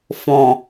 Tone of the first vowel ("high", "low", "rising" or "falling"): low